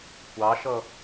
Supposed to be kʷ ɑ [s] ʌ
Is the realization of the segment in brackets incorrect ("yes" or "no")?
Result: yes